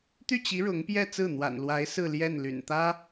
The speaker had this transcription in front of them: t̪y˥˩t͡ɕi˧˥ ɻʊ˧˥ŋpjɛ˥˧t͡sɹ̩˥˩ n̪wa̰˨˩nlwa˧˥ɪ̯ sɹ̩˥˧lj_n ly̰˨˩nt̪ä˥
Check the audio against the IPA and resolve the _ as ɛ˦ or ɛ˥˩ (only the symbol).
ɛ˥˩